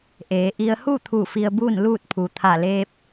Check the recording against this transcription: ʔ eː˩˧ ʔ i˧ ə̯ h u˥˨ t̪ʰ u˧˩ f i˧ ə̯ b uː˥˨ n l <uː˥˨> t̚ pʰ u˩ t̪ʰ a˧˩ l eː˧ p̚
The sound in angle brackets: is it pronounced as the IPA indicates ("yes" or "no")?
yes